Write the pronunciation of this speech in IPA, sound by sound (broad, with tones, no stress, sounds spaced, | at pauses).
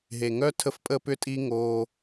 ɦ e˨ ŋ œ˦ tʰ ə˦ f pʼ ə˦ p ʏ˦ tʼ i˦ ŋ o˧